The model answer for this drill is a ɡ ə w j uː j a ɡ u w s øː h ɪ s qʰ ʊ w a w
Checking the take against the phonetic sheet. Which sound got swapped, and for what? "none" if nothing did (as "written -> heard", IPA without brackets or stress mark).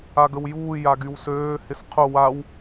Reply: u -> y